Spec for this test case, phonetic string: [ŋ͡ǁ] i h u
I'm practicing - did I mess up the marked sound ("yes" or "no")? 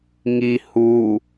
yes